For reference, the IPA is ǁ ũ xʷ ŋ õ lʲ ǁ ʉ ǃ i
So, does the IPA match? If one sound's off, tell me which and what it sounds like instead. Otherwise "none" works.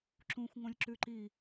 none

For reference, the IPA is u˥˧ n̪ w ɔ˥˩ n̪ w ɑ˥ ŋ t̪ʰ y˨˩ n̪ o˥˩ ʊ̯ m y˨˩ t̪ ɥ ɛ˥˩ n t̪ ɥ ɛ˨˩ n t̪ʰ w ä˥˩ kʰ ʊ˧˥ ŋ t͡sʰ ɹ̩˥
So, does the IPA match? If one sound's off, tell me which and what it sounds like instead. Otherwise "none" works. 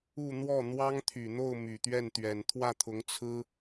kʰ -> t̪ʰ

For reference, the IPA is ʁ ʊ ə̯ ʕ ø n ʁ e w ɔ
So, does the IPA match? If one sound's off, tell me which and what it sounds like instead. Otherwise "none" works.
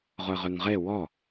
ʕ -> ʁ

